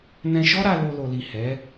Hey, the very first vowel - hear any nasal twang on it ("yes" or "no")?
yes